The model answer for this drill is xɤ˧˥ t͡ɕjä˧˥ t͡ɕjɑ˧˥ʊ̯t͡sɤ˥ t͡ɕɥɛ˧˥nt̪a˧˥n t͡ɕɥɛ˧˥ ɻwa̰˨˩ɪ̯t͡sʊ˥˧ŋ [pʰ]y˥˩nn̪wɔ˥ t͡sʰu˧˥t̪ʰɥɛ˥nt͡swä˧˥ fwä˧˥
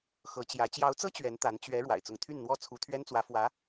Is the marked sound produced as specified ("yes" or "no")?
no